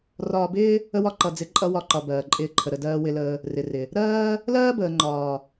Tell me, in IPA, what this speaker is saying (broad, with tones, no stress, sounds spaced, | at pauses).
r ɒː˧ b ɪː˦ | ə˦ w ɒ˦ ǃ ʌ˨ d͡z ɪ˨˦ ǃʼ ʌ˧ w ɒ˧ ǃ ɒ˨ b ɜː˨ ǃʼ ɪː˧ ǃʰ ə˨ ɾ ə˨ d ɜː˧ w ɪ˧ l əː˧ | r ɪ˨ r ɪ˨ | ɾ ɜː˦ | l ɜː˦ b əː˨ ŋ͡ǃ ɒː˨